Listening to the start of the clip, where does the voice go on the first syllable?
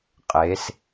rising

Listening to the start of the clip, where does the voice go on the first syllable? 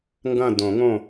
falling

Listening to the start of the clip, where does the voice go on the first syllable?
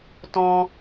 high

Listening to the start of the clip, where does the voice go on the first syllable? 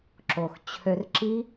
low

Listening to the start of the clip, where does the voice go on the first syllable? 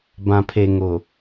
low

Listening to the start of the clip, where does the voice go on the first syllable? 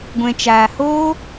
low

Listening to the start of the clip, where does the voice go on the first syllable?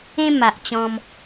high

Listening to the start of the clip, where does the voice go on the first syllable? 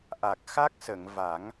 low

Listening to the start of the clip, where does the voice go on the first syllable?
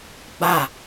falling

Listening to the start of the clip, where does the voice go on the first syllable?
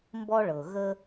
high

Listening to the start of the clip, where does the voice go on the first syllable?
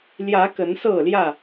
rising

